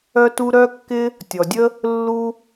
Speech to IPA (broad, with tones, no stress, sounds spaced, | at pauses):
œ˥ t u˥ ɾ œ˥ kː ɪ˥ | tʲ ɔ˩ dʲ ə˥ | lː u˥